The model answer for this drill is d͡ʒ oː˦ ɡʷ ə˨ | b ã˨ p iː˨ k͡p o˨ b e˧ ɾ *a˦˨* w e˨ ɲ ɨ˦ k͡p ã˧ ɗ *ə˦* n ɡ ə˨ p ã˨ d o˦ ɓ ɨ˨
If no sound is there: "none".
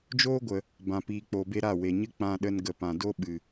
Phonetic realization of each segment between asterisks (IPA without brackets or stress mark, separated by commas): a˦˨, ə˧